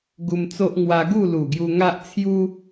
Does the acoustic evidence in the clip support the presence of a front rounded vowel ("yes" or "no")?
no